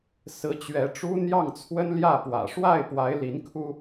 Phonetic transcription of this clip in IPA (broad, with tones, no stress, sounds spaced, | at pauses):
s ɹ̩˧˥ t͡ɕ ɥ ɛ˧˥ ʈ͡ʂ u˥ n̪ j ɑ˥˩ ŋ t͡sʰ w ə˥ n l j ä˥˩ p w ä̰˨˩ ʂ w a˥˩ ɪ̯ p w a˧˥ ɪ̯ l i˧˥ n kʰ u˥